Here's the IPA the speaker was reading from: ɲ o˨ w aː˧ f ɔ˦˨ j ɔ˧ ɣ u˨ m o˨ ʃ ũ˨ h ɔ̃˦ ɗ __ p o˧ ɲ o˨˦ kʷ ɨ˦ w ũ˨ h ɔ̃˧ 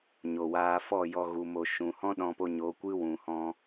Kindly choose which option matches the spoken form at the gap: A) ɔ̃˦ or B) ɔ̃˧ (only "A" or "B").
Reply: B